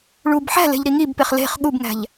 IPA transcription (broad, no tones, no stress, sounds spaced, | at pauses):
ɭ u b ħ æ̤ l e̤ ʎ ɾ i ŋ i b p e χ l e̤ χ ɠ u b ŋ æ̤ ʎ